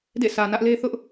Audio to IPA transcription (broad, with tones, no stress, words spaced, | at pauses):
dḛ˦˨sä˨ nä˦ʔ le˦θʊ˦ʔ